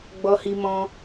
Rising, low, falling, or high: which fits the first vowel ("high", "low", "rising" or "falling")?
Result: high